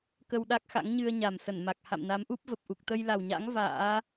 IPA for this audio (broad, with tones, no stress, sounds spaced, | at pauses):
k ə˧ w ɗ a˦˥ k̚ x a̰˧˥ ŋ ɲ ɨ˧ ə̯ ɲ a˨˩ m s ə˧˩ n m a˨˩ k̚ h a̰˧˨ m n a˨˦ m ʔ u˦˥ p̚ v ə˨˩ p̚ ʔ u˨˩ k̚ t̪ ə˧ j l a˨˩ w ɲ a̰˧˥ ŋ v a̰ː˧˥